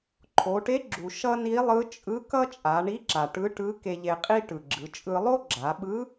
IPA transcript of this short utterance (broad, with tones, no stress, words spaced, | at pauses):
ǃʰo˩˧ʈe˧˥ɡ͡ǁu˩ ʃʌ˥ni˧˥lˠɯ˧˥ t͡ʃʼɯ˧˥ kʌ˥t͡ʃʼa˩˧ɳi˧˥ ǁa˩ʈɯ˧˥ʈɯ˧˥ ke˧ʎe˧qʼi˥ ʈɯ˩ɡ͡ǁɯ˩˧t͡ʃʼɯ˧ lˠo˥ɡ͡ǁa˩˧ɓɯ˧˥